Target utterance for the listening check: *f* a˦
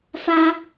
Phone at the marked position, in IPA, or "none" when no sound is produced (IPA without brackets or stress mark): f